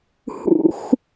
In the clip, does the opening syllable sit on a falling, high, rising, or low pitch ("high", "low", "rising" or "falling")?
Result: high